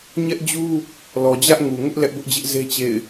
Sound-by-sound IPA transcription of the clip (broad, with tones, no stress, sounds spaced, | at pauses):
ɲ ɛ˦ ʔ d͡ʑ u˦ | l ɔ˨ d͡ʑ ä˦ ʔ ŋ u˨ ŋ ʊ˦ ʔ l ɛ˦ ʔ b ʊ˦ ʔ d͡ʑ ɪ˦ ʔ z e˦ t͡ɕ ḛ˦˨ ɪ̯